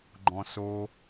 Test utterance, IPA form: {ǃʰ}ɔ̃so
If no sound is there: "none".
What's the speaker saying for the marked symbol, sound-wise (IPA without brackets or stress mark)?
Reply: ɡ͡ǃ